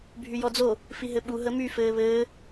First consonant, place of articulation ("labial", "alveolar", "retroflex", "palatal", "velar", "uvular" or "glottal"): labial